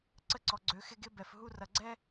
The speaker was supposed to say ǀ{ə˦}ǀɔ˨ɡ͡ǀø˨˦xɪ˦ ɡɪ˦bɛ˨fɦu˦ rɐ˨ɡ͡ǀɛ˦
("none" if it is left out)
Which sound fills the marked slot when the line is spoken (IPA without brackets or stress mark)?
ə˦